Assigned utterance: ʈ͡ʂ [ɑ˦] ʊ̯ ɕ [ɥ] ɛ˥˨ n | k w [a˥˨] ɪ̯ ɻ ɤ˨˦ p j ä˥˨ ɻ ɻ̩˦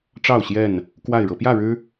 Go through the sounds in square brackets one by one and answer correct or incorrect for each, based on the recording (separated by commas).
incorrect, incorrect, correct